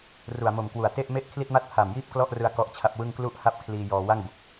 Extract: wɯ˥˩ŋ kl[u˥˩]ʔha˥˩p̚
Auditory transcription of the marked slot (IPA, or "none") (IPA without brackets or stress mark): u˥˩